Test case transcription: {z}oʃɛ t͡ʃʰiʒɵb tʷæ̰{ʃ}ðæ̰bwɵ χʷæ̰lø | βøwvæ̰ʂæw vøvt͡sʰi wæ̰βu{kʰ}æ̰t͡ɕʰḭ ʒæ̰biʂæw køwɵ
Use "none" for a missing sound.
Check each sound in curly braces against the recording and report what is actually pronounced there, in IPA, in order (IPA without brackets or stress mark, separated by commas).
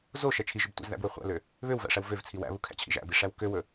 z, z, kʰ